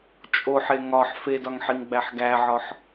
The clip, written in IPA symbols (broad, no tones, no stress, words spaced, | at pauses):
t͡ʃʼoħe ŋɒħ fedɒŋħiŋɡ͡bæħ ɡæʕɒħ